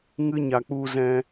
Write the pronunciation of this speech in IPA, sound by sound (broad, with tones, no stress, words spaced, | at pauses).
ŋɨ˧ɲa˨ k͡pu˧zɛ̃˧